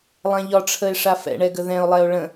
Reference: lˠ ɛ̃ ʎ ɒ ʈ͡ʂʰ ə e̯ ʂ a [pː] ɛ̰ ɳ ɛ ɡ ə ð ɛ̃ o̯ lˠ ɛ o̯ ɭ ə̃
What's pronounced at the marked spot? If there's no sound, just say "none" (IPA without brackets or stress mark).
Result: f